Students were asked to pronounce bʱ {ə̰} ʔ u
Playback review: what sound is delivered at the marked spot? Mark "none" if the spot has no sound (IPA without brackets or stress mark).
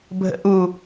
ə̰